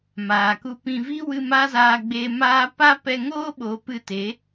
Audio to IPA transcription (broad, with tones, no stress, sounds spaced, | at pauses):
m aː˨ k u˧ p ĩ˧ v i˦ w ɨ˧ m a˦ z aː˧ ɡ͡b eː˧ m aː˦ p a˦ p ɛ˧ ŋ oː˦ ɓ oː˨ p ɨ˦˨ t e˨˦